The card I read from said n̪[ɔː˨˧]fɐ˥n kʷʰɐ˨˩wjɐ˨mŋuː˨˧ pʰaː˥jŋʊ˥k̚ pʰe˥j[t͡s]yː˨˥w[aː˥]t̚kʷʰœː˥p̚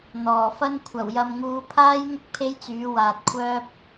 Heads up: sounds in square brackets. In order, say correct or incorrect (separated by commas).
incorrect, correct, incorrect